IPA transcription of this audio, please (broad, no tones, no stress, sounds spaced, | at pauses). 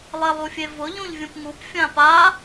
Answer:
lˠ e lˠ u fʲ e v ʊ ʎ ũ ʎ vʲ ũ p ŋ u p fʲ ã p a